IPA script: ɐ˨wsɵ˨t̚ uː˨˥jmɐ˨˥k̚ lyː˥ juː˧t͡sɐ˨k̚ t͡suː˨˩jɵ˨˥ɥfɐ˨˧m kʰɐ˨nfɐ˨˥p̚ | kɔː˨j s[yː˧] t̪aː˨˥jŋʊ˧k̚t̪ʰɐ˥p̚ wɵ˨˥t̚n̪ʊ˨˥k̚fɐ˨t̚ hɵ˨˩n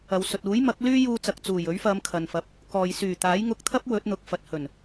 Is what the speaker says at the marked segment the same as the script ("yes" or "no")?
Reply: no